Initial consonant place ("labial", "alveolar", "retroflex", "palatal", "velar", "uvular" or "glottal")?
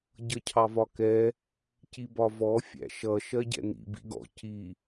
palatal